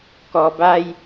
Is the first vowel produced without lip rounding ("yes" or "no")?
no